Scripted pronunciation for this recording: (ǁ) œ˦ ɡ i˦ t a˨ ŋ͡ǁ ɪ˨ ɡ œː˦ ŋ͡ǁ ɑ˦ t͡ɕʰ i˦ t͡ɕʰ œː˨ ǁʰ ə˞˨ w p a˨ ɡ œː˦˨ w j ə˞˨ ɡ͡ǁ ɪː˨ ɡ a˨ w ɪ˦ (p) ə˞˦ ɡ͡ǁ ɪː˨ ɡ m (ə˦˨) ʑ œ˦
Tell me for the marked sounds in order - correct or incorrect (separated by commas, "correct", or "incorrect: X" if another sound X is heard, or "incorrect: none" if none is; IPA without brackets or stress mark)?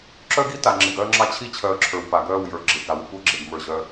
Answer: correct, incorrect: kʷ, incorrect: ə˞˦˨